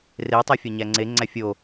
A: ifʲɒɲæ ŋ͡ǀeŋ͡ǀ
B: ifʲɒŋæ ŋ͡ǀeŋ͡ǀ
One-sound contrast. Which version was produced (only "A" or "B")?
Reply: A